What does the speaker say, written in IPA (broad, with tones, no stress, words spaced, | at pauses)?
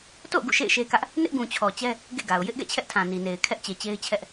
to̰˦˨ʊ̯ ɡṵ˦˨ʃḛ˦˨ɪ̯ʃe˦kä˦ʔ | nɪ˦ʔɡũ˨t͡ɕʰɔ˨t͡ɕɛ˦ | ɡḛ˦˨ɡa˨ʊ̯ jɪ˦ʔɡɛ̰˦˨ t͡ɕʰɛ˦ʔtʰã˨ni˨ne˨ɪ̯ kʰɛ˦ʔt͡ɕe˨t͡ɕe˦ɪ̯t͡ɕʰɛ˦ʔ